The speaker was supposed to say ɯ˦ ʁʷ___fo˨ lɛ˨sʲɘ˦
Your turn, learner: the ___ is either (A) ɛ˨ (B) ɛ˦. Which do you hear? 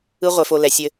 A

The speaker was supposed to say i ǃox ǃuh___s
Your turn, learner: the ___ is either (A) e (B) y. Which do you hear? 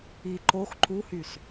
B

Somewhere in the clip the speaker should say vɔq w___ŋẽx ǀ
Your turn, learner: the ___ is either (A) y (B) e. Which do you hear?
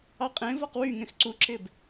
A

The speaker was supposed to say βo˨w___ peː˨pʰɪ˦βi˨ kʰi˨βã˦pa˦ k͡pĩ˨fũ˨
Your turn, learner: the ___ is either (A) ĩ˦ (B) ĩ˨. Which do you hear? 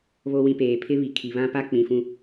B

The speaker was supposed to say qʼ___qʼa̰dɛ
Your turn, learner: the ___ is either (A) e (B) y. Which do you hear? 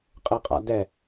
A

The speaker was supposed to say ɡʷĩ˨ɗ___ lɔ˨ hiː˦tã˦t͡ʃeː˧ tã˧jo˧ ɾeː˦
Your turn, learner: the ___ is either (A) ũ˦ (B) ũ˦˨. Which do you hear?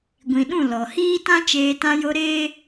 B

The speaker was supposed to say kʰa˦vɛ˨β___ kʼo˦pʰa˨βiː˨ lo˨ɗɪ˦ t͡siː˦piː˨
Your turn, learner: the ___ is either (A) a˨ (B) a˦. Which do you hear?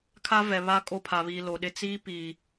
B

